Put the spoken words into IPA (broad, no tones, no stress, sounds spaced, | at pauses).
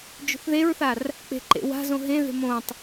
d͡ʒ o̤ θ ð e ɹ θ a r | k͡p e̤ ǃ ḛ w a̤ z õ ɦ ẽ ð e̤ m õ tˤ